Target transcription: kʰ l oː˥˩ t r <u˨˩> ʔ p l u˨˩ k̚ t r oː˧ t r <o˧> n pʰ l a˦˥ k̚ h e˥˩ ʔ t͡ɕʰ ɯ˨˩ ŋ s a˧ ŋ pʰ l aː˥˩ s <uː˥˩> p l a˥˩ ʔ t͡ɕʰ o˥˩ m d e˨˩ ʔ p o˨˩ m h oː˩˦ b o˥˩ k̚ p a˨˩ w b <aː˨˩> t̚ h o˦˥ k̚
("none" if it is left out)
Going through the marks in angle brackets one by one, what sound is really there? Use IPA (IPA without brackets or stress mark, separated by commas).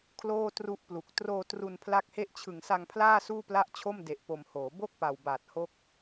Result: u˦˥, u˧, uː˥˩, aː˨˩